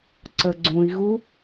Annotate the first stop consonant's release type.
click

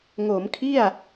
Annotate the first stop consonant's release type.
aspirated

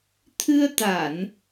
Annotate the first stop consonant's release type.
aspirated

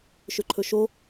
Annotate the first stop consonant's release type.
click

